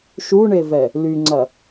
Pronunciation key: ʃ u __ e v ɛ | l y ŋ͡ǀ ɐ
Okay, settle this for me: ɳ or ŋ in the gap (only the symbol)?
ɳ